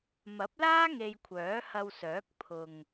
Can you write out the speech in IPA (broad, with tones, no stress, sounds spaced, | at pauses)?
m ɐ˨˥ p̚ l aː˥ ŋ e˧ j kʷʰ œː˨˥ h ɐ˧ w s œː˨˥ k̚ pʰ ʊ˨ ŋ